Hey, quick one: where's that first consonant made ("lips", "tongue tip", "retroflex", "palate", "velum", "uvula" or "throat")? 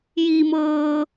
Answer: palate